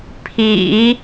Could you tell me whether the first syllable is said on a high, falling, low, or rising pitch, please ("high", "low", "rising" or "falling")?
low